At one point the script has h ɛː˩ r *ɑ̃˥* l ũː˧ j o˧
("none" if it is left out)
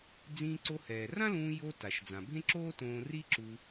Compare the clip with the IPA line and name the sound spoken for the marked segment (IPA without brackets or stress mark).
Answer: ã˥